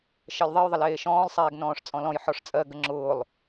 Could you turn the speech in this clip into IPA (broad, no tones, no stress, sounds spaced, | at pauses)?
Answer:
ʃ ɜ lʲ ðˤ e j ðˤ ə l eː ʃ ɔ̃ː lˠ sˤ ɛː ɡ n ɔ̃ː ʂ t͡sʼ ɔ̃ l ɔ̃ j ħ ɔ ʂ t͡sʼ ɜ ɡ ə ŋ͡ǁ ʊː lˠ